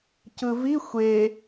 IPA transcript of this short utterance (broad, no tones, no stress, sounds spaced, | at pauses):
c ɯ v i xʷ e